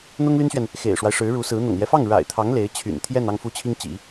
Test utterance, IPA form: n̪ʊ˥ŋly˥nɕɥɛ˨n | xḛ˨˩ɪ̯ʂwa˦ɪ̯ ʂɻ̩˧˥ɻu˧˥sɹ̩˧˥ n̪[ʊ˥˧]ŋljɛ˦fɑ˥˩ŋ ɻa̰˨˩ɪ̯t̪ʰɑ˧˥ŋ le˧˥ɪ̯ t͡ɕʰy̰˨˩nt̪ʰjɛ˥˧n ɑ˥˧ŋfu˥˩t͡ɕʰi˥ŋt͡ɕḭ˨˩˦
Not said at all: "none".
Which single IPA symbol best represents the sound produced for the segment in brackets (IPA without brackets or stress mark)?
ʊ̰˨˩